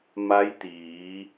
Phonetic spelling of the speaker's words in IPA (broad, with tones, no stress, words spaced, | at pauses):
ma˧˥jt̪iː˩˧